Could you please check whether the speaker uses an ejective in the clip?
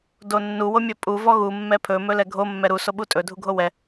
yes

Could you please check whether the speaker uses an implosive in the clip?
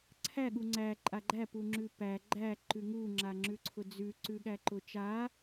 yes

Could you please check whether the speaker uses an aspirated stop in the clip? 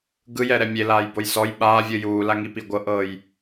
no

